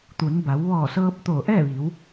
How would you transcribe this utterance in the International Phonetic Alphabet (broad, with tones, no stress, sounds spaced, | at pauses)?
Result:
t̪ u˩˧ n b a˩˧ w ʋ ɔː˧˩ s ɤː˧ p̚ t̪ o˧˩ ʔ ɛː˥˨ ʋ i˩˧ w